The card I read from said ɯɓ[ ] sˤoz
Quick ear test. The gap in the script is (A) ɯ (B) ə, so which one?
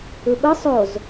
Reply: A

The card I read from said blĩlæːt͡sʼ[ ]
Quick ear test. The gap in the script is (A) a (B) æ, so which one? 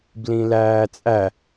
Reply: B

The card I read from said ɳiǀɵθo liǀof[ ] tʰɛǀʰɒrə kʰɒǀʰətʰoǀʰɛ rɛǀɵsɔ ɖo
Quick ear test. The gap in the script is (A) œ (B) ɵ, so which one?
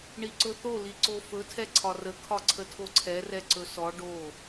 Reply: B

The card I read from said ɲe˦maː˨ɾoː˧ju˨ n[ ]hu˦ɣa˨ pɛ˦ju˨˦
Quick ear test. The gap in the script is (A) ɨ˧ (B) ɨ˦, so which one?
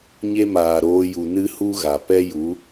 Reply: B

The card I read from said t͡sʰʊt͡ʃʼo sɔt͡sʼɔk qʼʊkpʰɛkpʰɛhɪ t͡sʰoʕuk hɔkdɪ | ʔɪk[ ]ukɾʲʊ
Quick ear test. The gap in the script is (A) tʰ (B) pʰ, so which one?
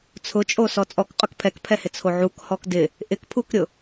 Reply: B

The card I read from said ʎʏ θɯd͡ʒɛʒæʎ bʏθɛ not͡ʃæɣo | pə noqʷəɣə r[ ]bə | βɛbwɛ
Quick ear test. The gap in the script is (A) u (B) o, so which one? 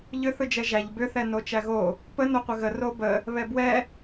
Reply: B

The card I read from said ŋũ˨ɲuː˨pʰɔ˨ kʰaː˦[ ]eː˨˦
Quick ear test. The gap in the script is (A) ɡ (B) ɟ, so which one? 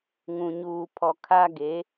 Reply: A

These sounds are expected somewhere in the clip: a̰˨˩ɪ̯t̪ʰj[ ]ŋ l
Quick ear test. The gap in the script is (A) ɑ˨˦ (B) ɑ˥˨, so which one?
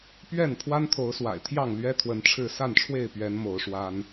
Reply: B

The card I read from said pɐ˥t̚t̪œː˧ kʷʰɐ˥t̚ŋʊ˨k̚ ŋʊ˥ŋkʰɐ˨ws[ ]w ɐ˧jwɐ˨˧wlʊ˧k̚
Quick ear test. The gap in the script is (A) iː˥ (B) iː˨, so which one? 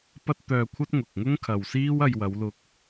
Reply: A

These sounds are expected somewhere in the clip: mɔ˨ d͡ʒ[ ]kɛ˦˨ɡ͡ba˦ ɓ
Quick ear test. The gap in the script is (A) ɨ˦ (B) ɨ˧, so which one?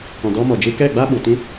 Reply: B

